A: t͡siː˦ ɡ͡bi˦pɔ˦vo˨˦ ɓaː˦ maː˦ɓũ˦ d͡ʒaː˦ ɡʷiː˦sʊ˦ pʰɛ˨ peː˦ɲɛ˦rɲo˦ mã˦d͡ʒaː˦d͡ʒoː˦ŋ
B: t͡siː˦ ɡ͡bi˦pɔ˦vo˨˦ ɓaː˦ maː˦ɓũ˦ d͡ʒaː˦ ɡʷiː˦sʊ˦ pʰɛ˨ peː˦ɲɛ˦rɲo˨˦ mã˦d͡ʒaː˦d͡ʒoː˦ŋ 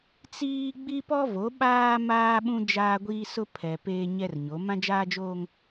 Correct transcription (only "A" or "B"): B